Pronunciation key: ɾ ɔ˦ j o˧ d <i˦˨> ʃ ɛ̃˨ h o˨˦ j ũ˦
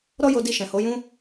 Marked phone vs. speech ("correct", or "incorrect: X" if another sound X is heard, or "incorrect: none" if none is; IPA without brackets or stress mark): incorrect: i˧